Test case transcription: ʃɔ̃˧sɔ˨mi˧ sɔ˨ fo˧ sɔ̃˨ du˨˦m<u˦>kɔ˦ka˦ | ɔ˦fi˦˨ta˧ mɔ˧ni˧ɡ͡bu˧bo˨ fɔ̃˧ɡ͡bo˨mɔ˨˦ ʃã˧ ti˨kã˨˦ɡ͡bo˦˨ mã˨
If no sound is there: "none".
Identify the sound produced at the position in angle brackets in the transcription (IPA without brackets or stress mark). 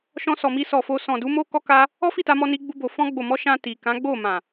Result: o˦